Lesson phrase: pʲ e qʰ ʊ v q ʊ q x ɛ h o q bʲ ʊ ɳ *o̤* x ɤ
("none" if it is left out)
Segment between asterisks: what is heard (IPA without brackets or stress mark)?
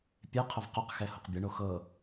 o